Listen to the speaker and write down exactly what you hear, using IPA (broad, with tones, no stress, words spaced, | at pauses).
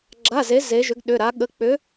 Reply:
ɡ͡ǁa˧˥˧ze˧˥ ze˧˥ʒʏ˧˥ɡɗʏ˧˥˧ ɾa˧˥ɠə˧˥˧ k͡pʏ˧˥